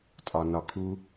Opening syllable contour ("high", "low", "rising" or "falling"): low